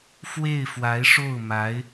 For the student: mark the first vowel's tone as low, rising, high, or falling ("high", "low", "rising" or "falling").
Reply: falling